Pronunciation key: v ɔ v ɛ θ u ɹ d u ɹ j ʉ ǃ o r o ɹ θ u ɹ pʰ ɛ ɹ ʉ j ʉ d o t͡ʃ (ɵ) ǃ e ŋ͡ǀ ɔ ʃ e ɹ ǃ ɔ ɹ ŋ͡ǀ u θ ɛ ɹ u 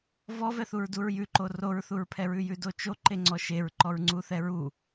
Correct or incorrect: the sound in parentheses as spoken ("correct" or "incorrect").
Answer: incorrect